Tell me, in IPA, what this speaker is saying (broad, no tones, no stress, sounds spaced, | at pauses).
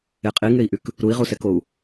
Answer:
e qʼ i ŋ e i̯ ʔ y k | ɾ u i̯ ʁ u s ɛ k o u̯